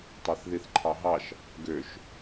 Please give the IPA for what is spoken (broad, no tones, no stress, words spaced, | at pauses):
tˤɑθðiθǃʰɑɦɑʃ | ɡøʃ